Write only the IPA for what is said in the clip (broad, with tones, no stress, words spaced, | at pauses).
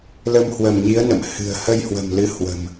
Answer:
lə˧mhwə˧˩mɲi˨˦ə̯ nə̰˧˨m hɨ̤˨˩ə̯ hə˧jhwə̤˨˩mlɨ˨˦ hwə̤˨˩m